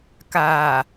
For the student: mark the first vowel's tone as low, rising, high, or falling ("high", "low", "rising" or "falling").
low